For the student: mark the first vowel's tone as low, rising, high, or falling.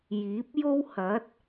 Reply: rising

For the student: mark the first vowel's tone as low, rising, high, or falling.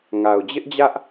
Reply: low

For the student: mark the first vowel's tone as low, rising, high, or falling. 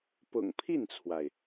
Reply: low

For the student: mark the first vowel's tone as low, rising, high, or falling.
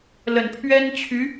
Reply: low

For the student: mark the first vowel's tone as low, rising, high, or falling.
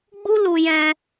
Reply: high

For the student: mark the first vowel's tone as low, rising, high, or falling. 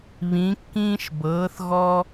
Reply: rising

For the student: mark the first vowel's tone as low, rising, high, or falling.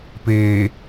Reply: low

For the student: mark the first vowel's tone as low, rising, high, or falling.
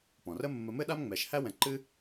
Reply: low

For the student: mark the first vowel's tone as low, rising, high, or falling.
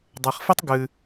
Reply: low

